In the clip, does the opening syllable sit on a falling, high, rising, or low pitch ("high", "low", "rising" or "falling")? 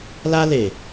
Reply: high